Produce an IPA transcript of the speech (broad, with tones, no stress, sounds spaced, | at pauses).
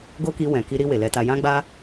ɡ o˦ k i˧ w ɛ̃˨ k i˧ ɾ i˧ w e˨ l ɛ˧ t a˧ j ã˦ ɡ͡b a˦